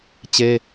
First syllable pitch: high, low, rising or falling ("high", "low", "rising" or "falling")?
high